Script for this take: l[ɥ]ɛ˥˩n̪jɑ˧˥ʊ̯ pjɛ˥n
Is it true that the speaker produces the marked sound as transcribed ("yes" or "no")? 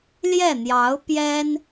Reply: no